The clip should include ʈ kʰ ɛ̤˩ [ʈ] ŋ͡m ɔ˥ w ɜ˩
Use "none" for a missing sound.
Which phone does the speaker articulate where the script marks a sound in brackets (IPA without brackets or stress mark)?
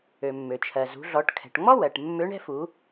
ʈ